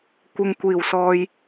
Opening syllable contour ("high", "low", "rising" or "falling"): low